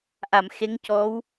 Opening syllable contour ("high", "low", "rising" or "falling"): low